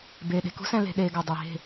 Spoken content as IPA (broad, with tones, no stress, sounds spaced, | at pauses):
b eː˨ ɗ e̤˨ k ṳ˦ s ɛ̃˧ l e̤˧ ɗ eː˧ ɡ ɔ˨ dˤ ɛ˨ ɦ e̤˦˨